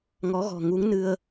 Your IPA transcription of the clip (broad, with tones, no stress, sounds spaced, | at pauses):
ŋ ɔ˨˦ ɣ ɔ̤˨˩ ŋ u˨˦ ŋ n ɨ˧ ə̯